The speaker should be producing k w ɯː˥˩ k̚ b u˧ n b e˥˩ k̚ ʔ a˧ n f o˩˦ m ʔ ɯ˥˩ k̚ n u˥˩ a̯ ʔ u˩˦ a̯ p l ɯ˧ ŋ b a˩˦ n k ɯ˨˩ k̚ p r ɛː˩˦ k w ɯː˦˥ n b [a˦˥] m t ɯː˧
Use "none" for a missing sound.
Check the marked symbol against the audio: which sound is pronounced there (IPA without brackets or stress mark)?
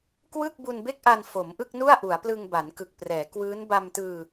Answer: a˧